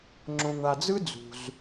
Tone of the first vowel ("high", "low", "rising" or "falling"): low